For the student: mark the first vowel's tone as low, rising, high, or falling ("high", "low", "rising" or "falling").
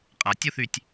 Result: low